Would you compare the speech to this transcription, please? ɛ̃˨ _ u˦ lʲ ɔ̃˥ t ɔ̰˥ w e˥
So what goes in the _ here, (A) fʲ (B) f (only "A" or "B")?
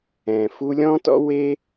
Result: B